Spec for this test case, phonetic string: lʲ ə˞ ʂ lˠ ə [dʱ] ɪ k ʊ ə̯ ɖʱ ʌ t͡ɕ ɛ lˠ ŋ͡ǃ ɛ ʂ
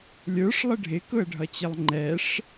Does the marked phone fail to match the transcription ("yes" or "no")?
yes